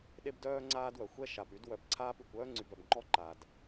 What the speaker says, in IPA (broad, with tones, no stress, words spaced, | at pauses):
ɗe˦bdœː˦ŋ͡ǀaː˦dwœ˨ xʷɛ˦ʃa˨py˨˦d wœ˨bǀʰaː˦py˨kʷ œː˦ŋ͡ǀy˨bœ˨bŋ͡ǃɔ˦ ǃa˨d